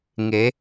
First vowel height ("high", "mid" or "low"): mid